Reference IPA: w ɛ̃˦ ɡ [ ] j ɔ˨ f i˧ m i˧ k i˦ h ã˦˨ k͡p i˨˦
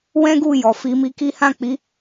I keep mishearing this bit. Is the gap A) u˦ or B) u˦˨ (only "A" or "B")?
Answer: B